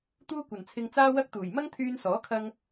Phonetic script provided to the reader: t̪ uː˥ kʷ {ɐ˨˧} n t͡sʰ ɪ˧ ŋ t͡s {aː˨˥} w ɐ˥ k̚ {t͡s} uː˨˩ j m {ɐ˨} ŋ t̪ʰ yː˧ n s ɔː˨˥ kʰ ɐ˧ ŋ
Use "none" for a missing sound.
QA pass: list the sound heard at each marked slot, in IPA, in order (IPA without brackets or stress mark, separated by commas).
ɐ˨˩, aː˥, t̪, ɐ˥